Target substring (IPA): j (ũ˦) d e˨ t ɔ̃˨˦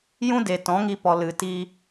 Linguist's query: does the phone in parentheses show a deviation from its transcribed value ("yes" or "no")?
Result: no